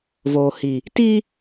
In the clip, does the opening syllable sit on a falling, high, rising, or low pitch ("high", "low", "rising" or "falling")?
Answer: low